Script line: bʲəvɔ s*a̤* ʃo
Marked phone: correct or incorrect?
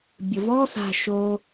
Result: correct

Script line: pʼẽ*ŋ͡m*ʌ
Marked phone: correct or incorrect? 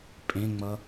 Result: correct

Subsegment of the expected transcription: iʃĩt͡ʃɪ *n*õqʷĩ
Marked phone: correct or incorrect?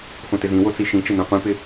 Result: correct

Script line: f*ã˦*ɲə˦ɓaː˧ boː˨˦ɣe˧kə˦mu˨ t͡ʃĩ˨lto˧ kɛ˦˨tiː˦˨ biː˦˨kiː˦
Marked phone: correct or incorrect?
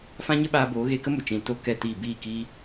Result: correct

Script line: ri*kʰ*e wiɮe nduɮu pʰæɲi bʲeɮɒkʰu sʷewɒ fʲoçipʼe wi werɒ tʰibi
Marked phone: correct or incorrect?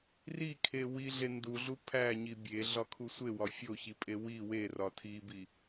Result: correct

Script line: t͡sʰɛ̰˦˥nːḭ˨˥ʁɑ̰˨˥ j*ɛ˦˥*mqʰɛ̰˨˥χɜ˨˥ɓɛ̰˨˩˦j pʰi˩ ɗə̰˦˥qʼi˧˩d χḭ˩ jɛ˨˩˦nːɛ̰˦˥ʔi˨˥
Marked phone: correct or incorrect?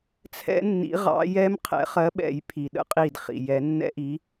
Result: correct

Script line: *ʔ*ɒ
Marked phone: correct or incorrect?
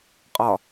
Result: incorrect: qʼ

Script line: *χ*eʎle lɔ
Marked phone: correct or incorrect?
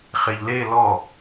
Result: correct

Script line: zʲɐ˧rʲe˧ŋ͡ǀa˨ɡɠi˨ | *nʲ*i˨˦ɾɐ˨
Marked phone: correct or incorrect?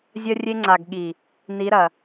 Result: incorrect: n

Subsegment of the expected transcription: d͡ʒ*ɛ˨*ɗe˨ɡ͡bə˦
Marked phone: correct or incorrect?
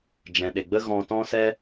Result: incorrect: ɛ̃˨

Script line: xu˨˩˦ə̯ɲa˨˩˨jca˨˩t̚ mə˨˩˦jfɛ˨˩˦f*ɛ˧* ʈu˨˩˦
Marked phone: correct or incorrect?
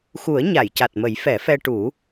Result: correct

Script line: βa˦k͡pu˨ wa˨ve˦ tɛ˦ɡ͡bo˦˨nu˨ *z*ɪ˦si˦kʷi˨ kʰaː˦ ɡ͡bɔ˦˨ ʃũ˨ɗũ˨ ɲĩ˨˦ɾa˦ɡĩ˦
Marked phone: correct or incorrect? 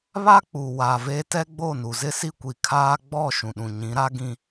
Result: correct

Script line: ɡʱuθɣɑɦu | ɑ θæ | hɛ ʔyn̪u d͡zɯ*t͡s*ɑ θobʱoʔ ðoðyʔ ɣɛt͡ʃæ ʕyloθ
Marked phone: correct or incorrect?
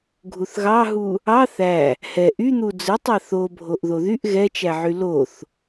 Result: incorrect: tˤ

